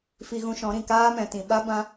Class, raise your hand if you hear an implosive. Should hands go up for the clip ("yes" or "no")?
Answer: yes